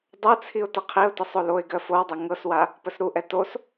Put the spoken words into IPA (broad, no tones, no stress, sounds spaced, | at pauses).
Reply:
dˤ ɜ t͡sʰ i ʊ̯ t ə qʰ i ʊ̯ t ə sˤ o l o ɪ̯ ɡ ɜ f o w dˤ ɛ ŋ ɤ s w a | p ə s ɾ u ʔ ɛ t o s